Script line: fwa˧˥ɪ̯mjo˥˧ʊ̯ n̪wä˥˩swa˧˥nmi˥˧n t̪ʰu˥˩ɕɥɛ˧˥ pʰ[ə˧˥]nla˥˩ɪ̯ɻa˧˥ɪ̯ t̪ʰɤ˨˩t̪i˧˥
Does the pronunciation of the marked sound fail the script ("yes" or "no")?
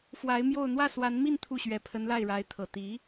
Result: no